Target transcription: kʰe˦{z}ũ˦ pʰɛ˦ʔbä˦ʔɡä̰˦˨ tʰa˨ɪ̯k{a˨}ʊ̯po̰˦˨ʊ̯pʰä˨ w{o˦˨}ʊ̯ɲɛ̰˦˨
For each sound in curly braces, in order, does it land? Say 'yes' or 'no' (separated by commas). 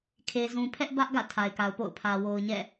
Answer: yes, yes, no